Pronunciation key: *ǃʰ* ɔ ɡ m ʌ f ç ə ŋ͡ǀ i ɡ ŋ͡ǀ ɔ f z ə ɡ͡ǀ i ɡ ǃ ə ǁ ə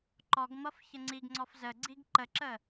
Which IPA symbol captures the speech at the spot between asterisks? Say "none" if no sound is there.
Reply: ǃ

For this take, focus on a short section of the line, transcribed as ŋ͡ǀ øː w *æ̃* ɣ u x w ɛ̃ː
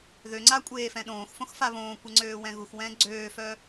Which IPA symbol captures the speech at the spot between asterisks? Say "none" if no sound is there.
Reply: ɛ̃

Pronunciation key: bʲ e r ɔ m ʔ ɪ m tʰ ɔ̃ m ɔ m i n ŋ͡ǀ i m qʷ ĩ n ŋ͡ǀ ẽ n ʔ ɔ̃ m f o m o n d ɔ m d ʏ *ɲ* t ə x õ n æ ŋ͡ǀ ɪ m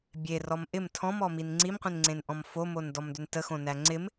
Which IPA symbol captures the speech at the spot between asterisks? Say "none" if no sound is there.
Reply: n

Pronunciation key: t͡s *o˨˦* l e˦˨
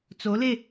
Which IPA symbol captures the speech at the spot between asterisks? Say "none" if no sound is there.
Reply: o˨˦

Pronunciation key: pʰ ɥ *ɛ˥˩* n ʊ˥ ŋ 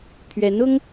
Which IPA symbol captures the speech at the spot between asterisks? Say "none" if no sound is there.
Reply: ɛ˧˥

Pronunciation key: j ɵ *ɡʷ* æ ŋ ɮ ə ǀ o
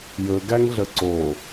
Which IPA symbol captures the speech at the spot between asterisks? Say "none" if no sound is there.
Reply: ɡ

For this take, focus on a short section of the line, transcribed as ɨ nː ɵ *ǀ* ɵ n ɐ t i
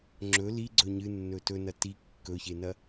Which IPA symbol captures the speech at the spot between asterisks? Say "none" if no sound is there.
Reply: t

